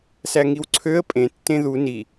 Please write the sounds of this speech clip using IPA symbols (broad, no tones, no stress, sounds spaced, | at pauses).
s æ ŋ i w ǀʰ ø ə̯ pʼ ẽ tː ẽ ð u n i